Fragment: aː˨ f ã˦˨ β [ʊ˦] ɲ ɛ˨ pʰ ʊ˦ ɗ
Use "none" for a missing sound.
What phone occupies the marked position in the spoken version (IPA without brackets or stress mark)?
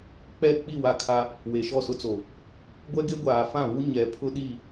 u˦